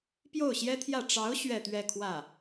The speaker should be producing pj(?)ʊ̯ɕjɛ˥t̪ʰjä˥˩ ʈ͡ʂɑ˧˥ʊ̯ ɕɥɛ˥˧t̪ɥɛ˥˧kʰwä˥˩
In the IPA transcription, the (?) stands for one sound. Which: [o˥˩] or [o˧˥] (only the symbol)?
o˥˩